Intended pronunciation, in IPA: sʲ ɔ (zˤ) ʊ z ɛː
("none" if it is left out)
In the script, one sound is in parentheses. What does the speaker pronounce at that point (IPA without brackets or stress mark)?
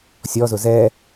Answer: z